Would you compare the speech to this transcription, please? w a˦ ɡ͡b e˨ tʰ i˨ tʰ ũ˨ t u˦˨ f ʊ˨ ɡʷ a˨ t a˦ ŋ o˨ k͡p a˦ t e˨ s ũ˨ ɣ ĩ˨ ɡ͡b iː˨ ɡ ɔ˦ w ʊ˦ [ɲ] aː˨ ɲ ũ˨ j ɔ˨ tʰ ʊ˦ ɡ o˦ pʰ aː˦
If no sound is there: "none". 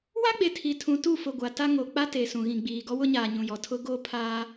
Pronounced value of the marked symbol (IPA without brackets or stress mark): ɲ